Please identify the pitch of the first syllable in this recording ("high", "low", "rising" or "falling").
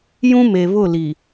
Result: high